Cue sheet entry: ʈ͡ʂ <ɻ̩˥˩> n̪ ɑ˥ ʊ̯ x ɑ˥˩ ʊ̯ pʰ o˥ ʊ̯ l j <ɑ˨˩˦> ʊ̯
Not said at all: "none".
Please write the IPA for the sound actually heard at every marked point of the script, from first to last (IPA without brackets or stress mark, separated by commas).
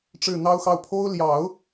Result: ɻ̩˥˩, ɑ˨˩˦